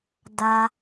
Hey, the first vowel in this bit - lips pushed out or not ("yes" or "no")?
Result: no